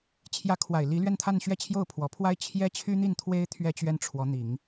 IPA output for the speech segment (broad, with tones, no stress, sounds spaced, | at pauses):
t͡ɕʰ j ä˧˥ kʰ w a˨˩ ɪ̯ l i˧˥ l ɥ ɛ˥˧ n t̪ʰ a˥˧ n ɕ ɥ ɛ˥˧ t͡ɕʰ j o˥˩ ʊ̯ pʰ w ɔ˨˩ pʰ w a˥ ɪ̯ t͡ɕʰ j ɛ˥ t͡ɕʰ y˥ n̪ i˥˩ n t̪ʰ w e˥ ɪ̯ t̪ʰ ɥ ɛ˥˧ t͡ɕ ɥ ɛ˥˩ n ʈ͡ʂʰ w ɔ˧˥ n̪ i˨˩˦ ŋ